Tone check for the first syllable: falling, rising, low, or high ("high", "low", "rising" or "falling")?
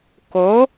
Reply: rising